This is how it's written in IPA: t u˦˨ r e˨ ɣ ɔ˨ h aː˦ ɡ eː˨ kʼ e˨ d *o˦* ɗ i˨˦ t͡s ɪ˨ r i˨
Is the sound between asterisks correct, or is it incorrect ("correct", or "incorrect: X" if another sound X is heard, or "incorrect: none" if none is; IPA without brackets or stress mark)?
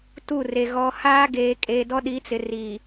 incorrect: ɔ˦